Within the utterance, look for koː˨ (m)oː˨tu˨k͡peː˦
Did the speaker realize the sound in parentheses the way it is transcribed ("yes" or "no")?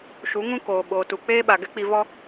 no